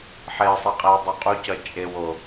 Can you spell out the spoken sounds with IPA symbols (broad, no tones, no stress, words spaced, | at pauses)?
ħesˤiqʼɛwdˤu qʼucʌ t͡ʃʼewo